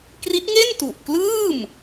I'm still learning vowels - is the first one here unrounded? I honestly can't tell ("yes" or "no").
yes